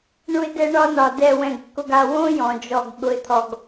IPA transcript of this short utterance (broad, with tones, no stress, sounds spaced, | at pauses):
ɳ u˦ ɪ̯ d ɛ˦ ɳ ɒ˦ n ɒ˨ d ɛ˨ w ɛ̃˨ ɡ kː ʊ˨ ɡ a˨ w õ˦ j ɔ̃˨ d͡ʒ ɔ˨ ɡ ɠ ʊ˨ ɪ̯ t̪ʰ ɔ˨ ɡ